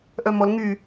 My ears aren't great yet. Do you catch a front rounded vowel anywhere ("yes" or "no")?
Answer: yes